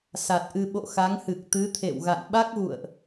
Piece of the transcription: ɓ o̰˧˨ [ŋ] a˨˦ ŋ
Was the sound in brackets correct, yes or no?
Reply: no